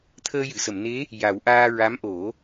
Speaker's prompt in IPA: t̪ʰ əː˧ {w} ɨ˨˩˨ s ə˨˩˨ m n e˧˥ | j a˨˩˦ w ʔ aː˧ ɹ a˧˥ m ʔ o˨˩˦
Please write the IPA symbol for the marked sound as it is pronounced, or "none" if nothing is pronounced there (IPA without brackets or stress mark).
j